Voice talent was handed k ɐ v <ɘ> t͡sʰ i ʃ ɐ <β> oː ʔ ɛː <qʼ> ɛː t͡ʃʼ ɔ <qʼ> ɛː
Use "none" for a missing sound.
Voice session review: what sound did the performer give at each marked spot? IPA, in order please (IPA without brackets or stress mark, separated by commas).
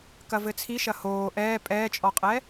ɘ, h, pʼ, qʼ